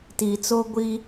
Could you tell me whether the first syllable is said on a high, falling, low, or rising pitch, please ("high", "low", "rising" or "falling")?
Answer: low